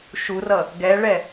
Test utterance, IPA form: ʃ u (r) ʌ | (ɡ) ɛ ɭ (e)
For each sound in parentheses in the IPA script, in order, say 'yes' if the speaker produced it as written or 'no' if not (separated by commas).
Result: yes, yes, no